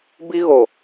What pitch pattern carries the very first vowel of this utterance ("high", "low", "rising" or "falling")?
high